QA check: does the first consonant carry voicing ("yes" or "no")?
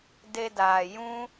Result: yes